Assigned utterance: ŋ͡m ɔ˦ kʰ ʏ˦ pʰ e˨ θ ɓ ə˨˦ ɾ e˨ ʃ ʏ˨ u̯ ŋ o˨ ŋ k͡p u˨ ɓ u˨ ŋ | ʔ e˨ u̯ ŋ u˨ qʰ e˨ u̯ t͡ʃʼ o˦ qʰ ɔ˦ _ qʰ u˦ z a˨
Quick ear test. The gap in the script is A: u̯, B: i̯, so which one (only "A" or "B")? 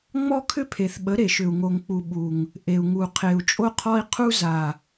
B